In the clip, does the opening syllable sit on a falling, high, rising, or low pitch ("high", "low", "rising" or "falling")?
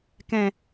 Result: low